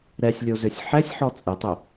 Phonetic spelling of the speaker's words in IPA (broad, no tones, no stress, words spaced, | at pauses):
ɾɛsʲlʲozøsʲ ħɛsʲħɔ t͡sʼetˤø